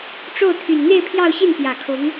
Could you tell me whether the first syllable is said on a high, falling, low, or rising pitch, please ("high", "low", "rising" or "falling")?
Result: falling